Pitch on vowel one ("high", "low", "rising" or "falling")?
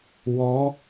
rising